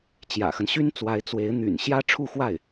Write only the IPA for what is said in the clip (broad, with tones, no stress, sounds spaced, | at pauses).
t͡ɕ j ä̰˨˩ x ə˦ n ɕ y˥ n t͡s w a˧˥ ɪ̯ t͡s w e˧˥ ɪ̯ n̪ y̰˨˩ n ɕ j ä˥ ʈ͡ʂʰ u˥˧ x w a˥˩ ɪ̯